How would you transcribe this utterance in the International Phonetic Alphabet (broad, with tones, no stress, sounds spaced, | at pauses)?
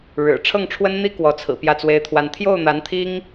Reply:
ɻ ɻ̩˨˩ ʈ͡ʂʰ ɤ˥˩ ŋ ʈ͡ʂʰ w ə˥ n n̪ i˥ k w ɔ˧˥ t͡sʰ ɹ̩˨˩ p j ä˥˩ t͡s w e˥ ɪ̯ t̪ʰ w a˥˧ n t̪ʰ j o˥˩ ʊ̯ n̪ a˧˥ n t̪ʰ i˥ ŋ